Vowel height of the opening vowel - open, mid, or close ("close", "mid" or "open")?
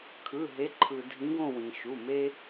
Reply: close